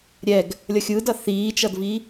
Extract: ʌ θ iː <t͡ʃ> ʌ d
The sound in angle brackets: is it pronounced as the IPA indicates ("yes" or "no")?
yes